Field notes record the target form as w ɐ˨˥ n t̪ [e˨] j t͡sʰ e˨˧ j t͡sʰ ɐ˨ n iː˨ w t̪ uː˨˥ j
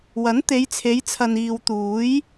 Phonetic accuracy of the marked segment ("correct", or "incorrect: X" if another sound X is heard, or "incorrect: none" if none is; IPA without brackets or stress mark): incorrect: e˨˧